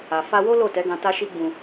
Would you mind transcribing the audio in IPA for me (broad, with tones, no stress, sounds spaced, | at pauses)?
a˨ f a˧ w o˦ l o˦˨ t ɛ˨˦ ɡ ã˧ t a˦ ʃ i˦ ɡ͡b ũ˧